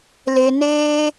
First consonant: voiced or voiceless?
voiced